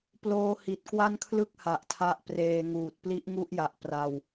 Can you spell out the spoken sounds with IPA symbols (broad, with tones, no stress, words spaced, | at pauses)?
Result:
ploː˦˥hi˨˩t̚ kwa˥˩nkʰlɯ˥˩k̚ ha˨˩ʔtʰa˦˥ʔpreː˧ŋuː˨˩t̚ pli˦˥ʔŋu˥˩ʔja˨˩ʔ pra˧w